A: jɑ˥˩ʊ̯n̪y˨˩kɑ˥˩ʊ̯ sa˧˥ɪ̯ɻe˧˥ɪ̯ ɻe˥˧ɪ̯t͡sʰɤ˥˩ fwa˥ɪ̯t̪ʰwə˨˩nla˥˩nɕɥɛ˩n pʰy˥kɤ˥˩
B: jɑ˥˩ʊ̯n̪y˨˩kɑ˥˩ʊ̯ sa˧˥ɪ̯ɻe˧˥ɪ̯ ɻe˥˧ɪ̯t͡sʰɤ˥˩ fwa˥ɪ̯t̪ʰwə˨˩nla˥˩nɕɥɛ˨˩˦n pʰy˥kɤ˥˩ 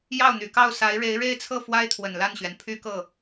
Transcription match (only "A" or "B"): A